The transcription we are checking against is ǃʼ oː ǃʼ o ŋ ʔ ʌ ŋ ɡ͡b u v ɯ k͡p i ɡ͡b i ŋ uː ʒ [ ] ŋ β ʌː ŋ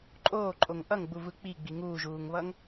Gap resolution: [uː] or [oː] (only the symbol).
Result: uː